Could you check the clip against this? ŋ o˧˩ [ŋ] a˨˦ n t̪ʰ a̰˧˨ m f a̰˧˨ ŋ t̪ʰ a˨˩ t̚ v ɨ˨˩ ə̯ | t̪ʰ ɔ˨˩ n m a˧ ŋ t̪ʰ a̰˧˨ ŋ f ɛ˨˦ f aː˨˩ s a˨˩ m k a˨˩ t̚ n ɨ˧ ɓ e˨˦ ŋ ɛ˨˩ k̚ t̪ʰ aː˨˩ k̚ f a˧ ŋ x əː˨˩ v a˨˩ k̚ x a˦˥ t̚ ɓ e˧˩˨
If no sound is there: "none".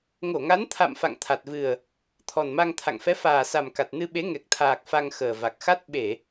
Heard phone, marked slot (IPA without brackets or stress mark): ŋ